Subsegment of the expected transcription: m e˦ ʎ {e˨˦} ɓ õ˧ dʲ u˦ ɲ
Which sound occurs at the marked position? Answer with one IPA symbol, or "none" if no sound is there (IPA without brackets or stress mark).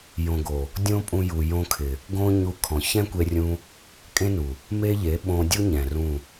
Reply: e˨˦